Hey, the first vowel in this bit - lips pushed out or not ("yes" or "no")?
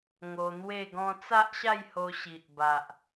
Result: yes